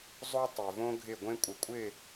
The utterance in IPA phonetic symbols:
zˤo˦ tˤe˨võ˦ɡʱɪ˦˨ ɡʷẽ˦kʷʼɪ˨kʷʼɪ˦˨

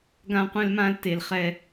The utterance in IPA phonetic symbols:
ɡã˧qʷɛ̃˧lmã˧l te˨lχɛ˧

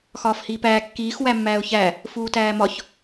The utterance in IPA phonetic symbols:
xɒːfhiːpæː kːiːx wæmːæːʊ̯çæ | fuːtæːmɒç

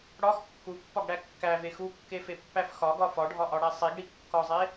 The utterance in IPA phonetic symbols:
ɽɒx kːupːɒɡɽæ kːæve xukːefepːæf xɒɡɒ fɒɖʱɒʔɒɽæ sˤiɡɽi kːɒzˤe

